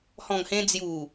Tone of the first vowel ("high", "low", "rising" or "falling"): low